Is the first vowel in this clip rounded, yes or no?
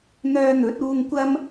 yes